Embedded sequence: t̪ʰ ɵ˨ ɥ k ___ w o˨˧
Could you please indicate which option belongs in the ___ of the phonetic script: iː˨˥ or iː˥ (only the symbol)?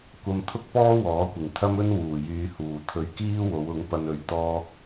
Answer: iː˥